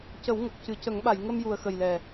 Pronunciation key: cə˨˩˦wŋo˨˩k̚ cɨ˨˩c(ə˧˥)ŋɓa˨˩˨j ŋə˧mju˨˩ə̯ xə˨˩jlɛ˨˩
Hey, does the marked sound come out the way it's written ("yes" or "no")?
no